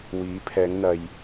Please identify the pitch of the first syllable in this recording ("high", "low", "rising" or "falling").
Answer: rising